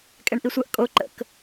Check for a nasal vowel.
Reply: absent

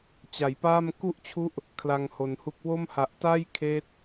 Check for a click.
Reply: absent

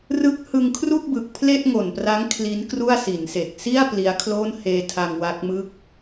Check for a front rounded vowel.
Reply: absent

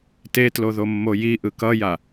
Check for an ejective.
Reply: absent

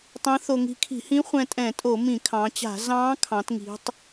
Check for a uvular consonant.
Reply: present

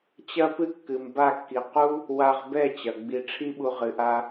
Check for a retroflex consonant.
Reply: present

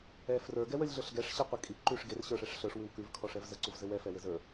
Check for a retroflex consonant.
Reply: present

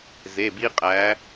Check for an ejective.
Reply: present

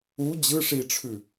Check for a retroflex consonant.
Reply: present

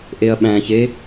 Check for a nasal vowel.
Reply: present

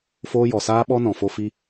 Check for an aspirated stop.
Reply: absent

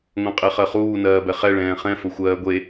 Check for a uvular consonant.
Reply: present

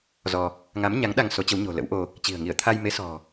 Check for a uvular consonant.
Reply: absent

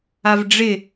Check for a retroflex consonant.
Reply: present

